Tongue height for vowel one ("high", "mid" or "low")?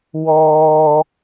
mid